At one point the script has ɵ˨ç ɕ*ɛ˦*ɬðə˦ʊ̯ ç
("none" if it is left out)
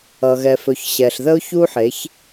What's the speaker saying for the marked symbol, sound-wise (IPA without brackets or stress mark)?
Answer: ɛ˨